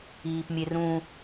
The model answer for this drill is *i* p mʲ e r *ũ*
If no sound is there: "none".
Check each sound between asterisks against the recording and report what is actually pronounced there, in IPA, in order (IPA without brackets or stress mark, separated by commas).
iː, ũ